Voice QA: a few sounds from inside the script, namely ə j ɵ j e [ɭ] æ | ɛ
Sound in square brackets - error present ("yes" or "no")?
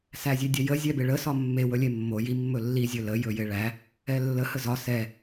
no